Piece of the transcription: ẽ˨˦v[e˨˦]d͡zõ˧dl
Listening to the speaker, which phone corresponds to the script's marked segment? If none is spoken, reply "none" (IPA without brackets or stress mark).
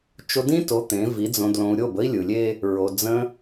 i˨˦